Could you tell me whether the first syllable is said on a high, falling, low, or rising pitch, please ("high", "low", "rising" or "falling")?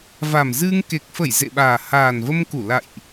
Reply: low